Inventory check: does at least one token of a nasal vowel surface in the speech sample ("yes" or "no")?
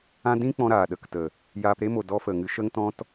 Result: yes